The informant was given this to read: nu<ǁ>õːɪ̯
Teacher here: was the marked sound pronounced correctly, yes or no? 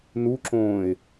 yes